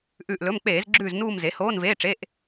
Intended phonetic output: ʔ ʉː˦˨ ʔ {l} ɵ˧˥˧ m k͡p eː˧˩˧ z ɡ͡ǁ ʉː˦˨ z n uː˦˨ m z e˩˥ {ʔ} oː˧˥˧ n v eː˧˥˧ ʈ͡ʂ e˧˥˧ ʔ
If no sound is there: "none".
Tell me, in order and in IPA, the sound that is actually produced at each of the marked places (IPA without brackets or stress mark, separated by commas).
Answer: l, h